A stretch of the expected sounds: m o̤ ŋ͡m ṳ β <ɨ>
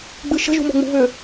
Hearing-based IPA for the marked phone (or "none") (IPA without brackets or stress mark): ʏ